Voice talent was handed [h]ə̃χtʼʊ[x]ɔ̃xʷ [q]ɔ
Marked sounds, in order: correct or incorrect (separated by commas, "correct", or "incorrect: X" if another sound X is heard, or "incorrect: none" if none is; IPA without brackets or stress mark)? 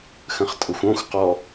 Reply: incorrect: x, incorrect: xʷ, correct